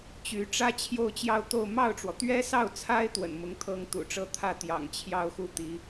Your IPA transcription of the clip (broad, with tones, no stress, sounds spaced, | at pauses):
t͡ɕ y˧˥ ʈ͡ʂ ä˥ t͡ɕʰ j o˥˧ ʊ̯ t͡ɕ j ɑ˥˧ ʊ̯ t̪ o˥˧ ʊ̯ m ɑ˥˩ ʊ̯ ʈ͡ʂ w ɔ˩ t̪ ɥ ɛ˥ s ɑ˥˩ ʊ̯ t͡sʰ a˥ ɪ̯ t̪ w ə̰˨˩ n m ʊ˧˥ ŋ t̪ʰ ɤ˥ ŋ t̪ ṵ˨˩ ʈ͡ʂ ɤ˥˧ t̪ʰ ä˥˩ t̪ j ɑ̰˨˩ ŋ t͡ɕʰ j ɑ˥˧ ʊ̯ x u˥˩ t̪ i˧˥